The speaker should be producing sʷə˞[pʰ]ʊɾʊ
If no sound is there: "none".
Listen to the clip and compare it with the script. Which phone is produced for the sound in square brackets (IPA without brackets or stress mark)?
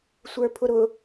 pʰ